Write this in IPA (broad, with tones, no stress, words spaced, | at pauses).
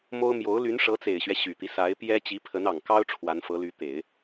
mo˥ʊ̯ mjo˧˥ʊ̯ ly˧˥nʂɤ˧˥t͡se˨˩ɪ̯ɕɥɛ˦ ɕy˨˩t̪i˦ sa˧˥ɪ̯pjɛ˥ t͡ɕi˧˥pʰə˧˥nɑ˨˩ŋkɑ˥ʊ̯ ʈ͡ʂʰwa˧˥nfɤ˧˥ly˧˥t̪e˨˩˦ɪ̯